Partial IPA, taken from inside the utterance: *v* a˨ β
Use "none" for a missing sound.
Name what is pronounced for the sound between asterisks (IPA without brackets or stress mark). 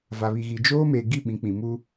v